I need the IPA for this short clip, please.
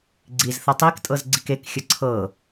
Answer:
ɡ͡ǀ i z θ ɤ tˤ i k tʼ ɤ z ɡ͡ǀ i k e k xʲ ə ǀʰ ɤ

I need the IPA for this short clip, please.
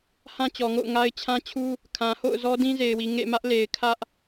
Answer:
h ã˦ t͡ɕ ɔ˨ ŋ o̰˦˨ ʊ̯ ŋ a˦ ɪ̯ t͡ɕʰ ã˦ t͡ɕʰ u˦ | kʰ ã˨ h o̰˦˨ ʊ̯ z ɔ˦ d ĩ˦ z e˨ ɪ̯ w i˨ ŋ ḛ˦˨ m ä˦ ʔ l e˨ ɪ̯ kʰ ä˦ ʔ

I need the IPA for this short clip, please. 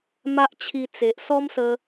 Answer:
m a˦ ʔ t͡ɕʰ i˧ t͡s e˨ ʔ s ɔ˦ m s ə˧

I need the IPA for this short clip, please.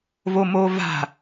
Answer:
v o m oː v a̤

